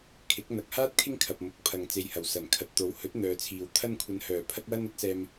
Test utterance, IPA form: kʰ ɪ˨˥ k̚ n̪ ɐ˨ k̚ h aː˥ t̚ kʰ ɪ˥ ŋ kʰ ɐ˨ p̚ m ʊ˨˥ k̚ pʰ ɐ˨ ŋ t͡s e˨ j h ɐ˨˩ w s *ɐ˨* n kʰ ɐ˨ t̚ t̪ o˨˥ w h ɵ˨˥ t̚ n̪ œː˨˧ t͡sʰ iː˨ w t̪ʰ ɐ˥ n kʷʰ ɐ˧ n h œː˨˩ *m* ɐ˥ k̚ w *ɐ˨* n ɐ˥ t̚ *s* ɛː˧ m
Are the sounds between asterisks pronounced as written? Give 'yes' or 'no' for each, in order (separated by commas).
no, no, no, yes